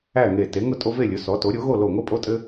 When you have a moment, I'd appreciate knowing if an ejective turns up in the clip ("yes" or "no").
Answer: yes